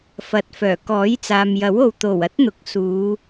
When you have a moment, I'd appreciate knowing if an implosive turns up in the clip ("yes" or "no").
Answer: no